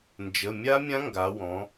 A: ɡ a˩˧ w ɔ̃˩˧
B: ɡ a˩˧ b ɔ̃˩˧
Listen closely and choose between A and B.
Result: A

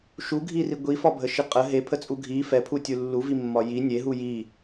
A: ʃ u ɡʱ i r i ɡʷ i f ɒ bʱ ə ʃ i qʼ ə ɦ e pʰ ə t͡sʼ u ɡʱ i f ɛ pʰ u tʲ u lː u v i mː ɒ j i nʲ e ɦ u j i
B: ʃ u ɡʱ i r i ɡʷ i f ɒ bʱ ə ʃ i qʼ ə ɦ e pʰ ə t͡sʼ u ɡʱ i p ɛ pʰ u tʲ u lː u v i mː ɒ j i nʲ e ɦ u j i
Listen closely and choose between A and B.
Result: A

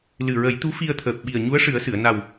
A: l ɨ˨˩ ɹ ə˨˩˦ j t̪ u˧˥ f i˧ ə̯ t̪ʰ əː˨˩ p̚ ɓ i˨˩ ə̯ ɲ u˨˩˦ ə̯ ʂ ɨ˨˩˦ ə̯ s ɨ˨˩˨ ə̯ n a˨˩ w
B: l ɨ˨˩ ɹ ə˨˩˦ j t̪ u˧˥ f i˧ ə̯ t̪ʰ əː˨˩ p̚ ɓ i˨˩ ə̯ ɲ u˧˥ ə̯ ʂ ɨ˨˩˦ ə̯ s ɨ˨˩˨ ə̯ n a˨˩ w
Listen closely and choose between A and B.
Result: B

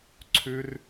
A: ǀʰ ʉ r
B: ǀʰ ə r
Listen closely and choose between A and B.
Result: A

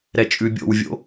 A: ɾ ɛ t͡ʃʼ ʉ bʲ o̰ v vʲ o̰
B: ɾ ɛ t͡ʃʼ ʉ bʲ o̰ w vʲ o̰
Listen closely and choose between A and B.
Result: B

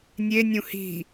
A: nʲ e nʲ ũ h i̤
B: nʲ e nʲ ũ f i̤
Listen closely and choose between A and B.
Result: A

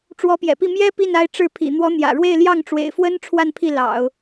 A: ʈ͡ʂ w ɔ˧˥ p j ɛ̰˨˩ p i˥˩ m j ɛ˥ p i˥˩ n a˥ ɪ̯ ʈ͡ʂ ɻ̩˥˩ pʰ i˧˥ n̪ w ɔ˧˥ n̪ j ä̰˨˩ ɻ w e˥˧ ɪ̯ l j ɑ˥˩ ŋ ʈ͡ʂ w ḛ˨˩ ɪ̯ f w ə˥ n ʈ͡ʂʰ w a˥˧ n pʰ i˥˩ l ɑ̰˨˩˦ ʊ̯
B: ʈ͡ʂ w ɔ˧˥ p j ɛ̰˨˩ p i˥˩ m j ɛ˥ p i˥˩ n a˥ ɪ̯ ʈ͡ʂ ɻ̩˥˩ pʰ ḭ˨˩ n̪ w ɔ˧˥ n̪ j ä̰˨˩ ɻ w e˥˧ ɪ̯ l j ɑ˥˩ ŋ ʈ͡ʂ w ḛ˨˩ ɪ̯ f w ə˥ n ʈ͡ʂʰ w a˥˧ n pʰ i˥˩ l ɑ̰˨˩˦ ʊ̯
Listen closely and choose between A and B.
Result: B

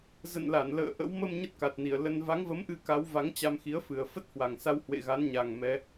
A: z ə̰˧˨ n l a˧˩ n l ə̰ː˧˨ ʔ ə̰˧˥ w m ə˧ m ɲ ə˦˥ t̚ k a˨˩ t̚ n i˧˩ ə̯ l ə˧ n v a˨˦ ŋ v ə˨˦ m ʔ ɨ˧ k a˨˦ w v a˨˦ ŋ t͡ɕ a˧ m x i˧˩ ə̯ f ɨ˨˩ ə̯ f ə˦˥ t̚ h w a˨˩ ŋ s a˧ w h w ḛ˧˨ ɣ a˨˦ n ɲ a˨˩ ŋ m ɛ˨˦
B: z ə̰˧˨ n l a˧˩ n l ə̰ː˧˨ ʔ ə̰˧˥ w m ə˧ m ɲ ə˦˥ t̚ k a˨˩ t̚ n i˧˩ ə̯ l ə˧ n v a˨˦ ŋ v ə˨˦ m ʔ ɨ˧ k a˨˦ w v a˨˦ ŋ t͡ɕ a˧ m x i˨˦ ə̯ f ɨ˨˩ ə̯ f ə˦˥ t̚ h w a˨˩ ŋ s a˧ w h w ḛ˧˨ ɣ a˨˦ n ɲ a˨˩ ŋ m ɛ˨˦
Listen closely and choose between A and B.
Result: B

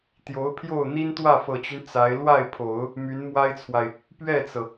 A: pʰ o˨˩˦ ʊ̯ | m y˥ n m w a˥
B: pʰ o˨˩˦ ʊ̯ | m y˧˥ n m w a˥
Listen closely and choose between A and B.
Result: B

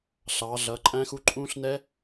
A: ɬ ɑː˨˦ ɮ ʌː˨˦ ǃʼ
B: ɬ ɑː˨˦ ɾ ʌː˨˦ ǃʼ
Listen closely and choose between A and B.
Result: A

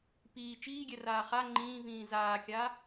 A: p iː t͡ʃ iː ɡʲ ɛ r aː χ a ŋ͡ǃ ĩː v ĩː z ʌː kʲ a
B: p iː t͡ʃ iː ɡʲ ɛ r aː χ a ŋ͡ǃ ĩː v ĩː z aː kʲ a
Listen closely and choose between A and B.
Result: B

